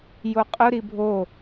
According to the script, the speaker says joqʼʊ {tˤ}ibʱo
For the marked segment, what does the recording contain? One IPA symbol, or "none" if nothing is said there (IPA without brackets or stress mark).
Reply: ɾ